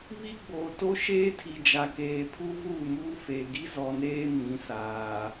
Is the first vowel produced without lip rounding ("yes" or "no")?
yes